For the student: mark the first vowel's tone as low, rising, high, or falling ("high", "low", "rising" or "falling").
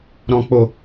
low